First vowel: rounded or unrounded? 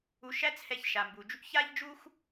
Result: rounded